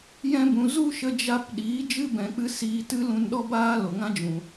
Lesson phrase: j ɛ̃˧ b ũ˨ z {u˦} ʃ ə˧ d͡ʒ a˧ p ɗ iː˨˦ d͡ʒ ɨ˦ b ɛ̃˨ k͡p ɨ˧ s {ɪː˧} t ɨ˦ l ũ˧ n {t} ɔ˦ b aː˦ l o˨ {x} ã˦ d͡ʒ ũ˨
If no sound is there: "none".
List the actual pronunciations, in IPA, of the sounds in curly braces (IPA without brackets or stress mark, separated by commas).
u˦, iː˧, ɗ, ŋ